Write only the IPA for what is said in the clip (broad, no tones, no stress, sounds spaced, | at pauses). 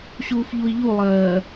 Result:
ɕ uː f ʎ u i̯ ʎ u lˠ ɜː